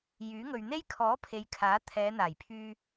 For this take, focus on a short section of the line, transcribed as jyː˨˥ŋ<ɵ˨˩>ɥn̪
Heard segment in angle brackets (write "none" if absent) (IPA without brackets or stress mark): ɵ˨